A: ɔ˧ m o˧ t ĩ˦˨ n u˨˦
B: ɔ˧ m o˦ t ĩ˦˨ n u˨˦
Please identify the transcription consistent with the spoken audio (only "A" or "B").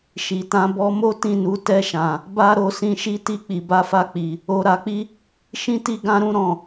B